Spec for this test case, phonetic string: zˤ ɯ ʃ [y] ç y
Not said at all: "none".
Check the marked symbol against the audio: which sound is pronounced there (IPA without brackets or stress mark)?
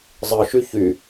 y